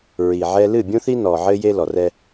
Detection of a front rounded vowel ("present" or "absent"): absent